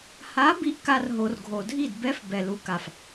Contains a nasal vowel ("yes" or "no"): no